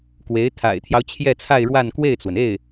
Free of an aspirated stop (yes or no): no